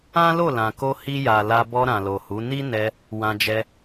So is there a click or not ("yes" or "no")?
no